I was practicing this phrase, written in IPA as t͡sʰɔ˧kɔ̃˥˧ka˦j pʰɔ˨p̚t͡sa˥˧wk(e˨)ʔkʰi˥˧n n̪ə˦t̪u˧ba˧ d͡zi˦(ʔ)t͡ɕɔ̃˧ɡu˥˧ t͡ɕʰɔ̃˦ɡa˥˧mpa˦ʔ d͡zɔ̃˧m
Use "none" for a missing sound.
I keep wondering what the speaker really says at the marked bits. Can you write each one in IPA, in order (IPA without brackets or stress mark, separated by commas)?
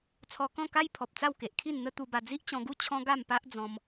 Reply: e˨, ʔ